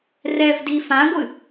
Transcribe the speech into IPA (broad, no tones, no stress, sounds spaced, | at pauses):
r ɛ v d i f ã ɡʷ ɨ